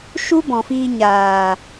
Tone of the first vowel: high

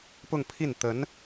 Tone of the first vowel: falling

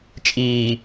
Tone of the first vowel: low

